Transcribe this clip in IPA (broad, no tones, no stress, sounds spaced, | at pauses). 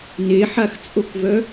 n e ħ a x t͡sʼ o k v œ